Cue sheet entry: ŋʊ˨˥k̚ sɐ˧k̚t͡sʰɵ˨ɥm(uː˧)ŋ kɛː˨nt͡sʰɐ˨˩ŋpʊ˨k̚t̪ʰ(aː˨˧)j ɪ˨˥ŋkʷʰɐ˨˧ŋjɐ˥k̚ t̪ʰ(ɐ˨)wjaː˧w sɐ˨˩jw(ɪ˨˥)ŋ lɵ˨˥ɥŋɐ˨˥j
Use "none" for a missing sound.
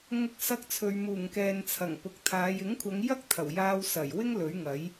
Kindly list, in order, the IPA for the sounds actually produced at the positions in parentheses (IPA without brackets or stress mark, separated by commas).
uː˨˩, aː˨˧, ɐ˨˩, ɪ˥